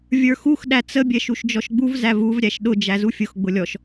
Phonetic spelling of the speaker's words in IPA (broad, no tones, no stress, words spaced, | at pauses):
vʲə˞xux ɗæt͡sə bʲɛʃuʃd͡ʒɔʃɡ͡buv zævuv ɾʲæʃɗʊ d͡ʒæzufʲʊx ɡ͡bʊlʲɔʃ